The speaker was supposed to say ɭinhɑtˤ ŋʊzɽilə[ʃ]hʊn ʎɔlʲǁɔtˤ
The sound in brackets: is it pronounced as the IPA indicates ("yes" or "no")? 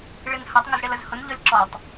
no